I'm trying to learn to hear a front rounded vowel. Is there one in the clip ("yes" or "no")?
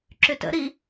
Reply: yes